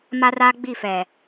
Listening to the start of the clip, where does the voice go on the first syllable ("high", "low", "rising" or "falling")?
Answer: high